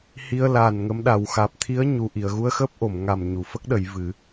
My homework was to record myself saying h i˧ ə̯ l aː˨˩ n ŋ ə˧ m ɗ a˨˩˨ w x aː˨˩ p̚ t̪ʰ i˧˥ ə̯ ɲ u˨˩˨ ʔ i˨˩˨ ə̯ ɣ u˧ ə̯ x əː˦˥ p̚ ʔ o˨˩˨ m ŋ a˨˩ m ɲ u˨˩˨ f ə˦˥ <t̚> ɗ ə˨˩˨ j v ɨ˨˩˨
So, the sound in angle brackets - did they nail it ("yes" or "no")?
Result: no